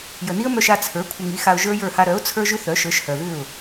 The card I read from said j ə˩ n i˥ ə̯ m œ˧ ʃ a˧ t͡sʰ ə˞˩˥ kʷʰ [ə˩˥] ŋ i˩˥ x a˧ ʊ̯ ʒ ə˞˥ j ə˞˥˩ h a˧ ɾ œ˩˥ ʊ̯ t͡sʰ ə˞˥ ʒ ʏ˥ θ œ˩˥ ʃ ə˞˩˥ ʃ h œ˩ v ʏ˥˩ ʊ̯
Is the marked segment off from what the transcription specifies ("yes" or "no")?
yes